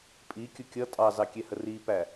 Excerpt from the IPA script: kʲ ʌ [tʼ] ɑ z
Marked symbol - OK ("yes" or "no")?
yes